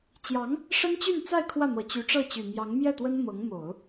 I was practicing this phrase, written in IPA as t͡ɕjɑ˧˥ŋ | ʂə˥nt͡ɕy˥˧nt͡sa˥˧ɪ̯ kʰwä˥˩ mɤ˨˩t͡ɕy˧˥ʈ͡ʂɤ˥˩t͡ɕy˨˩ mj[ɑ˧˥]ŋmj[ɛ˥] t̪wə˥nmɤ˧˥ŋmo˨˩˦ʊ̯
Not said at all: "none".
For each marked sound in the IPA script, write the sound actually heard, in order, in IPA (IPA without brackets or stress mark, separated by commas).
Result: ɑ˧˥, ɛ˥˩